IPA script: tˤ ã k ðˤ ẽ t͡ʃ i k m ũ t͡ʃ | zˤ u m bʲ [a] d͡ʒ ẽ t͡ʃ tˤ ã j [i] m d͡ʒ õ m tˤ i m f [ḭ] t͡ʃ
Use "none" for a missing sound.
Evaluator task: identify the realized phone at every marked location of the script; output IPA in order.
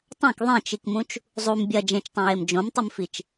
ɐ, e, i

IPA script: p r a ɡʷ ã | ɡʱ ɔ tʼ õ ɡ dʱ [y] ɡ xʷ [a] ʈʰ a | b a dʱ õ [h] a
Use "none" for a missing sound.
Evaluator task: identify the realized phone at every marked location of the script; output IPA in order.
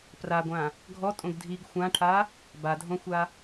i, ã, xʷ

